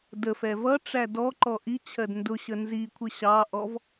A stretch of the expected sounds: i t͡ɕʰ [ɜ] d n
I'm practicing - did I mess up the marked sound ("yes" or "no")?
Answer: no